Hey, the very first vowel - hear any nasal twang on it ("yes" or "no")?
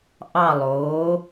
no